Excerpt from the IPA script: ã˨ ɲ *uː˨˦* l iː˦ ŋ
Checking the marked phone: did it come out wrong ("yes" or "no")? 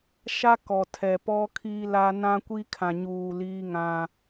yes